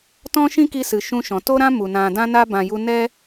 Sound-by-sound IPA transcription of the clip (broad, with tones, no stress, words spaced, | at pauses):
tɔ̃˦ʃĩ˦ki˧sɨ˨ ʃũ˧ʃɔ̃˨ to˦ɾã˦ mu˨ nã˨dã˧na˧bã˨ ju˧nɛ˦